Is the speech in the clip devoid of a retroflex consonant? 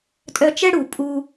no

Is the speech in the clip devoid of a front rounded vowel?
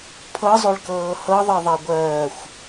no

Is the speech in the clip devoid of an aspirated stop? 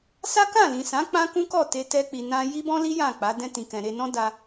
yes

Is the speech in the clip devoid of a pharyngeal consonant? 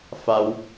yes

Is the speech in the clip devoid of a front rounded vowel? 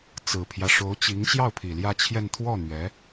yes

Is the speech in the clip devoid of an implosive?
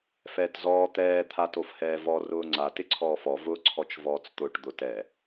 yes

